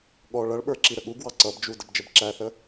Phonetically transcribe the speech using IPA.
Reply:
ɠ ɔ ɭ ʌ ɭ ɓ ə˞ ǁ i ɾ ə ɠ u ɡ w ɑ ǀ ʌ b d͡ʒ u d ə b d͡ʒ ə b ǁ æ θ ə

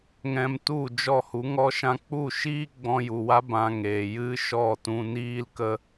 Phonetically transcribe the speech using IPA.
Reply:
ŋ ɛ̃˧ m t u˦˨ d͡ʒ ɔ˦˨ h u˨˦ ŋ ɔ˦ ʃ ã˦ k͡p u˦˨ ʃ iː˦ ɡ͡b ɔ̃˧ j u˨ w a˦ b ã˧ ŋ eː˨ j ɨ˦ ʃ ɔ˦˨ t ũ˧ n iː˦ l k ə˦

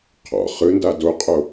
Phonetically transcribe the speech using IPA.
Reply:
qʰ ɔ̰ χ ɯ n d a d o qʼ o

